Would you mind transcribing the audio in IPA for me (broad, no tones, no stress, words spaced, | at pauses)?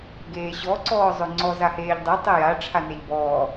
ɡeːɕɔ ǀɔːzˤøŋ͡ǀɔz aheːʎdˤe tˤeja ʈ͡ʂʰaneʎbɔː